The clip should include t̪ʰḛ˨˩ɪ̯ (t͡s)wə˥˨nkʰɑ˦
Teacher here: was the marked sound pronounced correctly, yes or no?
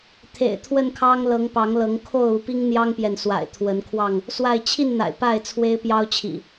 no